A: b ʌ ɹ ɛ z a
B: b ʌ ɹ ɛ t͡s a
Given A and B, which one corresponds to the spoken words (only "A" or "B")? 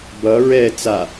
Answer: B